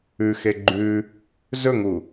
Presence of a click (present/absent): present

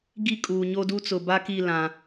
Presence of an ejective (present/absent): present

